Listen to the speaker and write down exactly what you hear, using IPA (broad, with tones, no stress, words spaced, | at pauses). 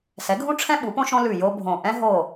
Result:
sɛ˨˥ɡʱũ˥ʈ͡ʂʰɛ̃˥ ɓu˨˥põ˥ʃõ˥ lʉ˦˨ jo˥bʱõ˦˨ ʔɛ̃˥ɦo˦˨